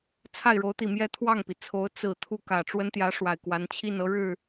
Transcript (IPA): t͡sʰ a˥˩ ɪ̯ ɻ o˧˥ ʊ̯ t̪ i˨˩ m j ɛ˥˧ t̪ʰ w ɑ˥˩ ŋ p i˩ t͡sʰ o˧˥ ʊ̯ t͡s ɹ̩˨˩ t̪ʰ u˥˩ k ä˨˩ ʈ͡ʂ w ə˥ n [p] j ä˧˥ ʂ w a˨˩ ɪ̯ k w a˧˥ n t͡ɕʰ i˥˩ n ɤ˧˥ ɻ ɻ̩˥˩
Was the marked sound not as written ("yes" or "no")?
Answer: yes